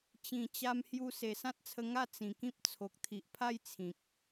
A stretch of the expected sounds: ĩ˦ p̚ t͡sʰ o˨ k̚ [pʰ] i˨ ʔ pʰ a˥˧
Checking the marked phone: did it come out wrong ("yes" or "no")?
yes